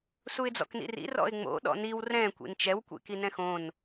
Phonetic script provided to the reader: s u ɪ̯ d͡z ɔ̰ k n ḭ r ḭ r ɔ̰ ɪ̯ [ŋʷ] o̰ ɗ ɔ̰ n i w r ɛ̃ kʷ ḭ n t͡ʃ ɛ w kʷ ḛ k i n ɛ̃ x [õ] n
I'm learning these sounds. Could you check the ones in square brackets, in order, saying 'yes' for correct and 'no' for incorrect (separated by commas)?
no, yes